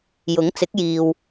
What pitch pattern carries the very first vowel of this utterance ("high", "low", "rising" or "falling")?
rising